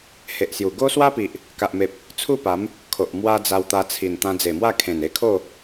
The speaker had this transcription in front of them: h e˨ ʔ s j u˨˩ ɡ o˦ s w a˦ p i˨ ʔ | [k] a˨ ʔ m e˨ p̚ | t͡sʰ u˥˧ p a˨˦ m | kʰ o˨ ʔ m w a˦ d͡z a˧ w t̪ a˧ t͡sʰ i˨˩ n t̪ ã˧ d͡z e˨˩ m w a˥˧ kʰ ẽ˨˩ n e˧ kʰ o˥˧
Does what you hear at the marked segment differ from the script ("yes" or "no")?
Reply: no